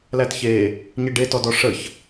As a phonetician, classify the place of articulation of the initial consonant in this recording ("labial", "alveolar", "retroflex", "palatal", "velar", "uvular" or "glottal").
alveolar